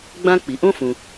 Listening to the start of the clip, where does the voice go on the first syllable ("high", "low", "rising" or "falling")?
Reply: high